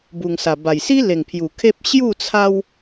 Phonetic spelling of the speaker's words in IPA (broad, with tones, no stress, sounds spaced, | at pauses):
b u˨˩ ŋ s a˨˩ b a˨˩ j s i˦ l e˨˩ ŋ pʰ j u˨˩ kʰ e˦ p̚ ɕ j u˥˧ t͡sʰ a˦ w